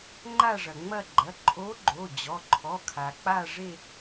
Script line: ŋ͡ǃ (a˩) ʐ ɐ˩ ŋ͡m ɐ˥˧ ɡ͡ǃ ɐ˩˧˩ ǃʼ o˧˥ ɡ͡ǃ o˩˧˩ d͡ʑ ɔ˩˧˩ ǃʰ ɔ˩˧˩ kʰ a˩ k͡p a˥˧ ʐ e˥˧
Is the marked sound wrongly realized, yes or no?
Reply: yes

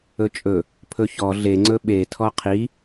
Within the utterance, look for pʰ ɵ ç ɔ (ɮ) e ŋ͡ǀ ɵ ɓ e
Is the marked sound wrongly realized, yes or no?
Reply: no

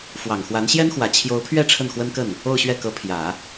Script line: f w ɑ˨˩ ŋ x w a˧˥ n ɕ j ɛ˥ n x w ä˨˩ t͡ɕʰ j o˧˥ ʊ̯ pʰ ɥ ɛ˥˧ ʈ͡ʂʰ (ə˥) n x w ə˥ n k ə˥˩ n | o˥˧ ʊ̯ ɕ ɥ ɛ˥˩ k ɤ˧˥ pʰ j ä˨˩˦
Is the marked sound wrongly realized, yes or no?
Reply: yes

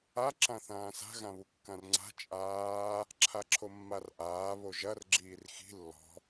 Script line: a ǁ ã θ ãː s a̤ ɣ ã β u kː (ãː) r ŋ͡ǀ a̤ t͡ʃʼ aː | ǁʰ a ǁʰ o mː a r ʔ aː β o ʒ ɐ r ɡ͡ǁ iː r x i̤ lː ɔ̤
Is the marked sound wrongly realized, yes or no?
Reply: yes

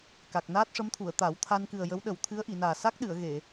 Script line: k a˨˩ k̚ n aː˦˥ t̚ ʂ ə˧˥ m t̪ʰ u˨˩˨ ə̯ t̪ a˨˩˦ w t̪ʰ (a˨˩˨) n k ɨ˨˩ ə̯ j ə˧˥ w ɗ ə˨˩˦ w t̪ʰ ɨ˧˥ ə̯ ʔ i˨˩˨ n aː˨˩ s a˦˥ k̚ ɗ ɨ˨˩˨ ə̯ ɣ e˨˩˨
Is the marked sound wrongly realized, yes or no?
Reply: yes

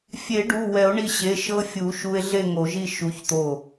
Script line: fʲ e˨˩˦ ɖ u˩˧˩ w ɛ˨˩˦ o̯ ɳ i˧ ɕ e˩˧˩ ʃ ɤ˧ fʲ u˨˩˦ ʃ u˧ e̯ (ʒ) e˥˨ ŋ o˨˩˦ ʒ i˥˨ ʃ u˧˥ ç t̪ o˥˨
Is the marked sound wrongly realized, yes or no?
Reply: yes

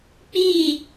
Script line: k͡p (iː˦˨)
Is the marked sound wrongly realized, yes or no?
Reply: no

